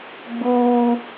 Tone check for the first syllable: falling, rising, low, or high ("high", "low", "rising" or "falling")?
high